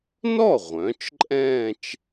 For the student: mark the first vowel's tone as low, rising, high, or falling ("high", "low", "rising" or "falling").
falling